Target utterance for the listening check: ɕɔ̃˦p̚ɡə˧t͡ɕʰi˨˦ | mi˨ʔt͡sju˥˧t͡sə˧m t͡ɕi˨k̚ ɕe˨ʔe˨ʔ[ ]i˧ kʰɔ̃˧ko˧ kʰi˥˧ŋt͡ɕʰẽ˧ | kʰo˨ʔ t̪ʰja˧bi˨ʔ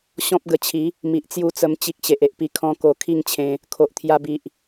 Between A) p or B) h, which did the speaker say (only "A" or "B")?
A